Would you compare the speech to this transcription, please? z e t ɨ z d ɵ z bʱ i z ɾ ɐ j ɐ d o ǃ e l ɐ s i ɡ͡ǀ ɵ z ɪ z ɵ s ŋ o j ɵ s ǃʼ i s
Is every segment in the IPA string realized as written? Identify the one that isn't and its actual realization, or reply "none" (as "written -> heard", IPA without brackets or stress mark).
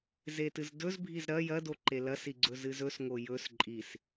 ɪ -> ɨ